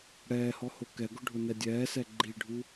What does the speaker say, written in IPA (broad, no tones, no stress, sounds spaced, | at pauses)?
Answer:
ɽ ɛː h ɔ h o k ɛ ɡ ʊ ɖʱ ʊ n ɛ dʲ ɛː s ɛ ɡ͡ǃ i ɖʱ u